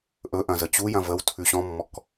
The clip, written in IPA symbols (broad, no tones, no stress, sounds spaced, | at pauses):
ʔ ɵ ʔ ɐ̃ z ə t͡ɕ u j ɐ̃ v ə w tʰ ʉ ɕ ɔ̃ mː ɔ k